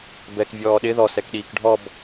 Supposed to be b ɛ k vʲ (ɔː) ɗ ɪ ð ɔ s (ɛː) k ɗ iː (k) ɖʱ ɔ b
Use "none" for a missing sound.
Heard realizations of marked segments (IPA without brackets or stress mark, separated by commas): ɔː, ɛ, k